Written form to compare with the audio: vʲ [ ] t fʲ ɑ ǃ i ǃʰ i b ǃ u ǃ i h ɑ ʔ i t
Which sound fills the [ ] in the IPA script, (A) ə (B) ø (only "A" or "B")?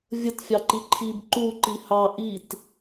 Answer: A